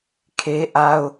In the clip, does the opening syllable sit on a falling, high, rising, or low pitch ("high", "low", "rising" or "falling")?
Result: high